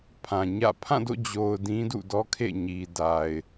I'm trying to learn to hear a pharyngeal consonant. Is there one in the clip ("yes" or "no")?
no